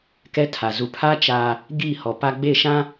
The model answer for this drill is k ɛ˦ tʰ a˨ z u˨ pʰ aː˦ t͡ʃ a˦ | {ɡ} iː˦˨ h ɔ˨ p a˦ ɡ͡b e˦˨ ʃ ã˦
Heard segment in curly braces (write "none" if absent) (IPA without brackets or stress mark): ɡ